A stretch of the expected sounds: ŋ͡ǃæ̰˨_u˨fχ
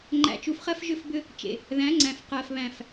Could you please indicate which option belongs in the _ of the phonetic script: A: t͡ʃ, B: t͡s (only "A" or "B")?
A